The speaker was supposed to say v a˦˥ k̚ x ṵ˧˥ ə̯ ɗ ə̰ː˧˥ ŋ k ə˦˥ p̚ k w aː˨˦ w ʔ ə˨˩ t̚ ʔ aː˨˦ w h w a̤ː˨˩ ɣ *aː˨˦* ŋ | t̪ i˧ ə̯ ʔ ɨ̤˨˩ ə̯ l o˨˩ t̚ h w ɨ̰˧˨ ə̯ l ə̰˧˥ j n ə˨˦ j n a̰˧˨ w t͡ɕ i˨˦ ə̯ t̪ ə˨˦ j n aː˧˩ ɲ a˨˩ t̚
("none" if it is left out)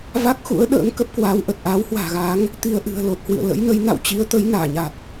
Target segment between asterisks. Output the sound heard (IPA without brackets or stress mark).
aː˨˦